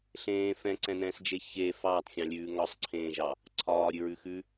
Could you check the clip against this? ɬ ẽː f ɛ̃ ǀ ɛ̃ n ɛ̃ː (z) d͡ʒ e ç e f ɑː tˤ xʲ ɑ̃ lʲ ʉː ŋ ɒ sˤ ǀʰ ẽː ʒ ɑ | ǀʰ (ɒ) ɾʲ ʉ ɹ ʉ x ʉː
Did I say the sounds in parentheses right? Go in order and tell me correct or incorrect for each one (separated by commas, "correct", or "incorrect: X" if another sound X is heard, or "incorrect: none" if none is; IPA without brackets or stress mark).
incorrect: s, incorrect: ɒː